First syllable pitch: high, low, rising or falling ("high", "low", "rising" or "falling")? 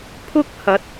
high